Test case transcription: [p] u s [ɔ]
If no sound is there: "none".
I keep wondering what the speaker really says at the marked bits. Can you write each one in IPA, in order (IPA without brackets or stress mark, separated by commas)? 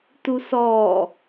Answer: t, ɔ